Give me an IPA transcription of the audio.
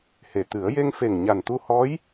h e˨˩ t̪ ɨ˨˩˦ ə̯ j e˧ ŋ f e˨˩ ŋ ɲ a˨˩ n t̪ u˧ h ɔ˧˥ j

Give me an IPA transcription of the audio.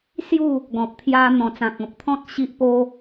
s j u˥˧ | ɡ ɔ̃˨ p̚ t̪ʰ j a˧ n̪ ɔ̃˨˩ t͡s ã˨ k̚ ɔ̃˨ p̚ t̪ʰ ɔ̃˦ t̚ ɕ i˦ ʔ p o˦

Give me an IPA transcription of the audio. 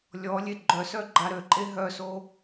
lʲ ɔ lʲ e ɡ͡ǃ œ s œ ɡ͡ǃ a ɾ ø ǃʼ e ɦ œ s o

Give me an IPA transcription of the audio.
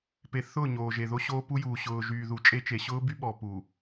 p e˨ θ ʊː˦˨ ɲ oː˨ ʒ e˨ ð o˦ ɕ oː˦ p u˦ j uː˨ ɕ ʊː˨ ʒ yː˨ ð u˨ t͡ʃʼ e˦ t͡ʃ e˨ ɕ ʊː˦ b y˦ ɓ ɔ˨ p u˨

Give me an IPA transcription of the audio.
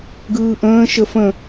ɡ ɯː ʔ ə̃ː ʃ ə f ə̃

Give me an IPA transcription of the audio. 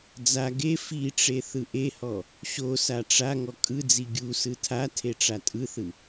d͡z a ɡ e f i ʈ͡ʂ e θ ɯ ʔ e h ɔ | ɕ o s a ʈ͡ʂ a ŋ ɔ kʼ ɯ d͡z i ɡʲ u s ɯ tʰ a tʰ e ʈ͡ʂ a tʼ ɯ θ ɯ

